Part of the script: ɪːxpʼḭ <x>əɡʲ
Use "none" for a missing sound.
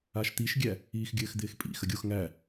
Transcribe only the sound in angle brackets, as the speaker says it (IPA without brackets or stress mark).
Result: x